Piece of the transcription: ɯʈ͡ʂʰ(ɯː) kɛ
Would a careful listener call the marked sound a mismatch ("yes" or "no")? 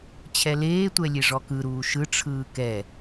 no